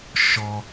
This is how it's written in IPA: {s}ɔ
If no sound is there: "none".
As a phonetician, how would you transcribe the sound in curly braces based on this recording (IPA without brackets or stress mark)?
ʃ